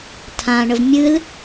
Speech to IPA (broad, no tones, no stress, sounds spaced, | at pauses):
tʰ ã ɳ ə v mʲ ɨ l